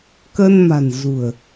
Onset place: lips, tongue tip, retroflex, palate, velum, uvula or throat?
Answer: velum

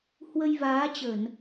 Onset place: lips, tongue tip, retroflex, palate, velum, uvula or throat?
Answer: throat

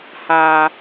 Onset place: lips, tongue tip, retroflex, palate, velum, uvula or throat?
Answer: throat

